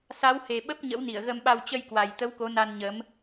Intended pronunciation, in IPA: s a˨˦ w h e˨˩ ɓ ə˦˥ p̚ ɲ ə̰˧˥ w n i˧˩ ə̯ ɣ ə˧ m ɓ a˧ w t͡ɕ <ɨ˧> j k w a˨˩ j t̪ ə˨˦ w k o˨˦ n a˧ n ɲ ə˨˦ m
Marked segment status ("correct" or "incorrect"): incorrect